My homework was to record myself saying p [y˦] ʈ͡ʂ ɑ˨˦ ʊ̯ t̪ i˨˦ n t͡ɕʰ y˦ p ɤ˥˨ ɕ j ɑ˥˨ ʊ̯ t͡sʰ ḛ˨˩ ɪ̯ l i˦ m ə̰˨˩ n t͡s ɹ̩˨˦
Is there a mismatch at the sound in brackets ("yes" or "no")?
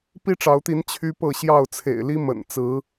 yes